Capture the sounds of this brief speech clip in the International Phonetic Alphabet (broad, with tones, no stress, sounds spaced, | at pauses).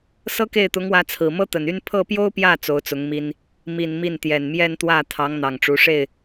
s ɤ˥ k e˥˩ ɪ̯ t̪ ʊ˧˥ ŋ w ä˧˥ t͡sʰ ɹ̩˨˩ m ɤ˥ t̪ ə˨˩ n y˥ n pʰ ɤ˥˩ p j o˥ ʊ̯ p j ä˥˩ t͡s o˧˥ ʊ̯ t͡s ʊ˧˥ ŋ m i˥ n | m i˨˩ n m i˥˩ n t̪ j ɛ˨˩ n m j ɛ˥˧ n t̪ w ä˥˩ t̪ʰ ɑ˧˥ ŋ n̪ ɑ˨˩ ŋ ʈ͡ʂ u˧˥ ʂ e˥˩ ɪ̯